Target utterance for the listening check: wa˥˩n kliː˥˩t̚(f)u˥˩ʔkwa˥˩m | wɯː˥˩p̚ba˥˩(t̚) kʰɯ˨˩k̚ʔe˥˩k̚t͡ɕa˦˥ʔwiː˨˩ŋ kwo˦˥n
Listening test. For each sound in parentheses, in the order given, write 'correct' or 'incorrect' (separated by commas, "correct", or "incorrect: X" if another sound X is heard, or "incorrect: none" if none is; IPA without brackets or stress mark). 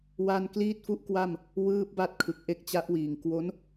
correct, correct